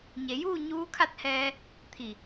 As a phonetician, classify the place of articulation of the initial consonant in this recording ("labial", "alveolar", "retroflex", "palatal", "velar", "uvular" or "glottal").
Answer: palatal